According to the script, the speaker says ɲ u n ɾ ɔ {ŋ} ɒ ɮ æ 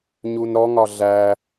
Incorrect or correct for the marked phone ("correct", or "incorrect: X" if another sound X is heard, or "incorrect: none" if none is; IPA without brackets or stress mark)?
correct